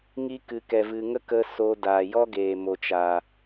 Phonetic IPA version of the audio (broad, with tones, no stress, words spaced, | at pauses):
ŋi˦ kɨ˨kɛ˨ vɨ˨ŋə˦kə˧ soː˧ daː˨ jɔ˦ɡeː˨ mo˨t͡ʃaː˨